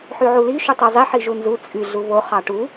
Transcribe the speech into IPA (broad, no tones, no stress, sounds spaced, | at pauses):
ħ y ʕ u l i ʃ u tˤ e zˤ i ħ i ʒ u n z u t͡sʼ y ɮ u β o χ ɑ ʈ u